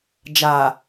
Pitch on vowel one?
low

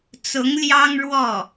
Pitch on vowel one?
rising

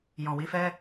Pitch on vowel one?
low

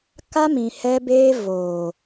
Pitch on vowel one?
high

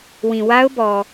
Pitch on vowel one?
low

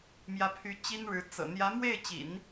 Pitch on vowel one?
rising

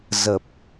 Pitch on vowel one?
low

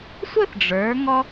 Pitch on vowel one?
falling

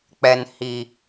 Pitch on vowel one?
low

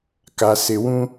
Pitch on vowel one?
low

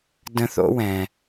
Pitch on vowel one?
high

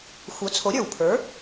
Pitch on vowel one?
rising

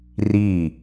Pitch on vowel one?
falling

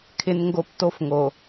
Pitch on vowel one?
high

